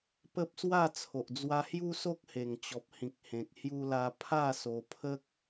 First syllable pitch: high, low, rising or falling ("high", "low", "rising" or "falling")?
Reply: high